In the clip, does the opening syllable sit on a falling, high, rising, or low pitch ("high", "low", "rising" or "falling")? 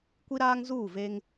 high